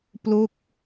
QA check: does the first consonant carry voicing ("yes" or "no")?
no